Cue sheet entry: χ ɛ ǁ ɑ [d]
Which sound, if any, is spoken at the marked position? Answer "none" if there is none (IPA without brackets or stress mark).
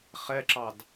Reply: d